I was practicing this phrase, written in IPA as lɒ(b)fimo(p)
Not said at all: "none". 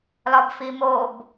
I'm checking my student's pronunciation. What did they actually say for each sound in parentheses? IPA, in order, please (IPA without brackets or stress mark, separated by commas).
b, b